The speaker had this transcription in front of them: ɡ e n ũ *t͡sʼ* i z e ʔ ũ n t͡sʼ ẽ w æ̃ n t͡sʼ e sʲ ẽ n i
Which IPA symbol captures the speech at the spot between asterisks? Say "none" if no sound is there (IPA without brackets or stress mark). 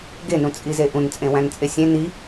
t͡sʼ